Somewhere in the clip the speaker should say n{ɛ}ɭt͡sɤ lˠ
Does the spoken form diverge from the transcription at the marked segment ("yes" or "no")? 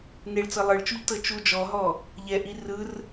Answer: yes